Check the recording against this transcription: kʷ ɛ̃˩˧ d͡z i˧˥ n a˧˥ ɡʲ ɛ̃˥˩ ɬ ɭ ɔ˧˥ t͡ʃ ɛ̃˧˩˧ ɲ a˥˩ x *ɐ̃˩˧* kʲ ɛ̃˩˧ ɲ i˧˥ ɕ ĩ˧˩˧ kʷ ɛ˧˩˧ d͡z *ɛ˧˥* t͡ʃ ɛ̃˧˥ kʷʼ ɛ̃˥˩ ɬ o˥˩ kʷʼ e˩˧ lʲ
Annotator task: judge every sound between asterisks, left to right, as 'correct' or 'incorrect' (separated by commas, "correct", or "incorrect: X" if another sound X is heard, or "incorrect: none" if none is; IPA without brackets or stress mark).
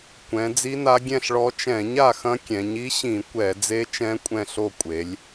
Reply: incorrect: ɐ̃˧˥, incorrect: e˧˥